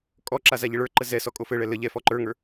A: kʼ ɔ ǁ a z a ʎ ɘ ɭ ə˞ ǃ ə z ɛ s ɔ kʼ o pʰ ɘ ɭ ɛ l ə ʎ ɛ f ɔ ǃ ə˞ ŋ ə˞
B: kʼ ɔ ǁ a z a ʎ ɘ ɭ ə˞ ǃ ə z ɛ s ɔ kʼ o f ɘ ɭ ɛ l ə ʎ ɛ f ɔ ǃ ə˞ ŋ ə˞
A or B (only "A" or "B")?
B